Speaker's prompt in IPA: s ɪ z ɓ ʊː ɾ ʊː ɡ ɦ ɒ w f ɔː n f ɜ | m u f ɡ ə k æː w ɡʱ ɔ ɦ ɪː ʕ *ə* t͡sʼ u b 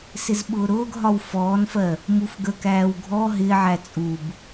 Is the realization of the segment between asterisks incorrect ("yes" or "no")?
yes